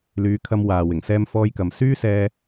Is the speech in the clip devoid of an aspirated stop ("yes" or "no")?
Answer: no